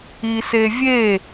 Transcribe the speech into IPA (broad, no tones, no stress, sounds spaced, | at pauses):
i s e vʲ e